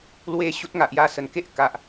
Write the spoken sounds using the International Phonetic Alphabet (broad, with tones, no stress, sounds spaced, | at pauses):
l w e˦ ɕ u˦ t̚ ŋ a˨ ʔ j a˦ s ə˧ n k e˦ ʔ k a˨ ʔ